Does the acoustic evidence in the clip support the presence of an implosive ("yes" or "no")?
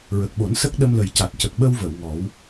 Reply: yes